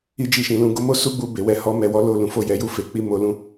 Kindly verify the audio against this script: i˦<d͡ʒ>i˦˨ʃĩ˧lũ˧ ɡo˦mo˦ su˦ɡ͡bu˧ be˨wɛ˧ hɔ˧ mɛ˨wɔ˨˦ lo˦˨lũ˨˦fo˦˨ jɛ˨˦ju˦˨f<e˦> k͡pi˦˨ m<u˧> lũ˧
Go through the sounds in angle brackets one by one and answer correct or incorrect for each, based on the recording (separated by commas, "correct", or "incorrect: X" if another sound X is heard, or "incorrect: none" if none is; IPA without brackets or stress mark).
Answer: correct, incorrect: e˨˦, incorrect: o˧